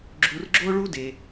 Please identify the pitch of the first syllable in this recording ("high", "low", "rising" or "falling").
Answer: low